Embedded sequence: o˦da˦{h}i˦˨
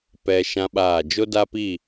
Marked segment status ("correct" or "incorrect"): incorrect